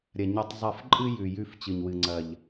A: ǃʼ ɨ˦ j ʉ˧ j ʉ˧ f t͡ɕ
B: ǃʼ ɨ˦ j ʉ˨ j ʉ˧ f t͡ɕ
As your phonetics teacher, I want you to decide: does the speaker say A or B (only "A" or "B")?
B